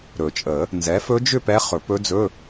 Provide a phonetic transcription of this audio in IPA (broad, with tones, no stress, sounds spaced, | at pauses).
ɾ ɵ˨˩˦ t͡ʃʼ ə˨˩˦ | n z ɛ˩˥ f ɵ˧˥ d͡ʒ ʏ˥˨ p ɛ˧˥ χ ɵ˨˩˦ p ɵ˧˥ d͡z ɵ˧˥˧